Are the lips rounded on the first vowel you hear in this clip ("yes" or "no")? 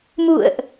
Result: yes